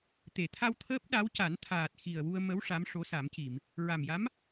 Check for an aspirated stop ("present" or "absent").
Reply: present